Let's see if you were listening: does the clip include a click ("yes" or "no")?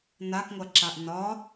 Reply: yes